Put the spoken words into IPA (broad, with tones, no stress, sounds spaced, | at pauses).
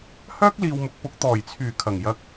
h œː˥ k̚ l iː˨ w m ʊ˨ k̚ p ʊ˨˥ k̚ t̪ ɔː˨˩ j t͡sʰ yː˨˩ kʰ ɐ˨˩ ŋ j ɐ˨˥ k̚